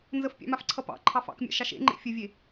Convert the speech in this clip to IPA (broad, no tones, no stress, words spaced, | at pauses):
nzəfpʲɑ̰mafǀʰʌ pɑ̰ǃʰɑf ɑ̰kmʲɑ̰ʃɑʃ ḛŋ͡ǃḛ fʲəvʲe